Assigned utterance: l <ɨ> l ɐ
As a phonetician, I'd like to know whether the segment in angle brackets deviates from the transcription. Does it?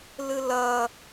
no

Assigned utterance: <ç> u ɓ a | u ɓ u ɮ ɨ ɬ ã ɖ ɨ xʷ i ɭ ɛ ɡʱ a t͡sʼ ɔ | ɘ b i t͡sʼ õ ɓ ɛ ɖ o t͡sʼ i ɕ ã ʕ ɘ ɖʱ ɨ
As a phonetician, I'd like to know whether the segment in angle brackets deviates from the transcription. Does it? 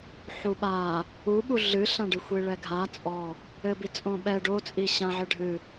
yes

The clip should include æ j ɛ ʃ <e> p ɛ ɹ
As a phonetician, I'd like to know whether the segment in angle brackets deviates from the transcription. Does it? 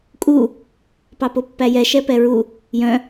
yes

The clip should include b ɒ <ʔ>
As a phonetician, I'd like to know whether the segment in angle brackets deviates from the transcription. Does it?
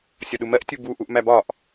no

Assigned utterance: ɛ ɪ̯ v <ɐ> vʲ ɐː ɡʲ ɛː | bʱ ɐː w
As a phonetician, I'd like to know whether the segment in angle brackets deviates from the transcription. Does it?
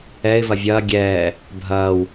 no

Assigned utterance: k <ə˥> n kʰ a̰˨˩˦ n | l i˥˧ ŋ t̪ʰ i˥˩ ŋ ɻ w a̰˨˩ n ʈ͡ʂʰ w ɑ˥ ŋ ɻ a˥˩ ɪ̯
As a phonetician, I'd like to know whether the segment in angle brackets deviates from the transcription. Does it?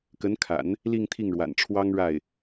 yes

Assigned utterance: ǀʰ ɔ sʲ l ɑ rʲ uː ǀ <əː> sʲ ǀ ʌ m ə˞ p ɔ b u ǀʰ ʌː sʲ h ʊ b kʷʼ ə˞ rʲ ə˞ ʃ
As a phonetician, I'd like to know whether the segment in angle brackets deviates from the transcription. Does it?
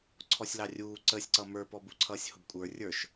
no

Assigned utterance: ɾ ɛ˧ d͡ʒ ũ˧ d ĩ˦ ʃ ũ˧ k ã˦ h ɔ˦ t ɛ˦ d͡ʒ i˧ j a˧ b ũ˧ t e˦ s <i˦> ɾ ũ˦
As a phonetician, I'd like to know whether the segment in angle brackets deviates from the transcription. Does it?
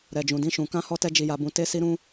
no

